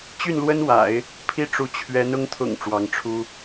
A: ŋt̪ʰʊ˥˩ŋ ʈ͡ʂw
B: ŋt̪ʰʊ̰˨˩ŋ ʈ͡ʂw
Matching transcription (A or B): B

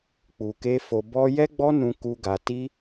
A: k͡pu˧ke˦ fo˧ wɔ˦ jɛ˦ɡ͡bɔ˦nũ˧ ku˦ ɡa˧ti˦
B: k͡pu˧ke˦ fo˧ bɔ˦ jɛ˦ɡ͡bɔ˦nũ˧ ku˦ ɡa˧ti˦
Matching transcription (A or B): B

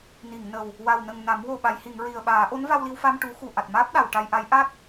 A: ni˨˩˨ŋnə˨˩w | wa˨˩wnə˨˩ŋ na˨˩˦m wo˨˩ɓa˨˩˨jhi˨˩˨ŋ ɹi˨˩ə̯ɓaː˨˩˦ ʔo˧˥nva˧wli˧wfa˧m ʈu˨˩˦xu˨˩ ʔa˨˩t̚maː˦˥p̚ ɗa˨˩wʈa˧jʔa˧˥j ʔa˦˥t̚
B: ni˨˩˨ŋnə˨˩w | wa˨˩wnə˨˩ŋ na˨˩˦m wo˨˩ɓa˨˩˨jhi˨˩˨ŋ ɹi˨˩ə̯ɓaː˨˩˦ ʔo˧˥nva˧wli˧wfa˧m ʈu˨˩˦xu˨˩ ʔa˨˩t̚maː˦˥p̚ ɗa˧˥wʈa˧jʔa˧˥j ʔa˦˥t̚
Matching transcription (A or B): A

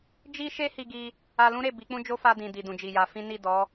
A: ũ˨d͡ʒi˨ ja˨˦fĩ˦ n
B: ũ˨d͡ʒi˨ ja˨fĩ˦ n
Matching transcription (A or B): A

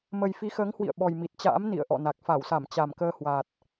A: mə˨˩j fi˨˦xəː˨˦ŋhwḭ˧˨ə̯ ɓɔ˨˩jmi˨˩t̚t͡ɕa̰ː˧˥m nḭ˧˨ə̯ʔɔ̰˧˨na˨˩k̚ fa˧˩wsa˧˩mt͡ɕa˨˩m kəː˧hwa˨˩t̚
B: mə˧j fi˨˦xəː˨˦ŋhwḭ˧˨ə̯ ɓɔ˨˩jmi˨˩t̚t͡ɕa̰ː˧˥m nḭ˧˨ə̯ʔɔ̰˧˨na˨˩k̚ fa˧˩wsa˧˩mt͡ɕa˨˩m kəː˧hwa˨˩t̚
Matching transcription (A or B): A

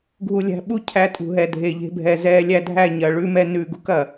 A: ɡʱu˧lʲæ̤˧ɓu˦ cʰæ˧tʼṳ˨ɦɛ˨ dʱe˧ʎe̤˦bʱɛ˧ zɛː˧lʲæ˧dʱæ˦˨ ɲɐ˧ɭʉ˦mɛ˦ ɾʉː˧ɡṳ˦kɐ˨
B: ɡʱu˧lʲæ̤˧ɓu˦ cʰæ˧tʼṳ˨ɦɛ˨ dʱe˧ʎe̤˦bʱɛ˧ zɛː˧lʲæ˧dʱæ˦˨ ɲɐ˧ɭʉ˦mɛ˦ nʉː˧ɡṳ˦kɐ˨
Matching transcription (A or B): B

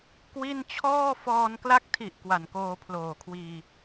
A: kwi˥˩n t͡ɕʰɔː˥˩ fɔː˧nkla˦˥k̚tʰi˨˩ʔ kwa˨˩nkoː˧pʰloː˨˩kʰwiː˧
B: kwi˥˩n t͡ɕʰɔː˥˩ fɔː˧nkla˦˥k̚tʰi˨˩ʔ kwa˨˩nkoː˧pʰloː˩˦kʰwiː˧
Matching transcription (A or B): A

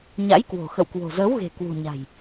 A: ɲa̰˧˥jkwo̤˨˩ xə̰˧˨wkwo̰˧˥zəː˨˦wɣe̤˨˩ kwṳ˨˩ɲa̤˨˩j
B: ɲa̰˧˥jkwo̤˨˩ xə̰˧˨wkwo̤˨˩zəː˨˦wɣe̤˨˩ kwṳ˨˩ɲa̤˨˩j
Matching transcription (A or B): B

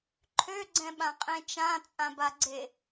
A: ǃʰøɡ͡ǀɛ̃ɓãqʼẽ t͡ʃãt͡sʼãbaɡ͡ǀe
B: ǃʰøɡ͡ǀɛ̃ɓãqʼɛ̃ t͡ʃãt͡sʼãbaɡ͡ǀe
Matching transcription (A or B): A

